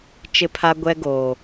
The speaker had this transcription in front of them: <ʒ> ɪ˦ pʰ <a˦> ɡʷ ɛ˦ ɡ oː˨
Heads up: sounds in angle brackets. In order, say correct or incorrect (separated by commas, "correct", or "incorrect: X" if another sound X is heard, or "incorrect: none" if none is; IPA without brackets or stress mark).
incorrect: t͡ʃ, correct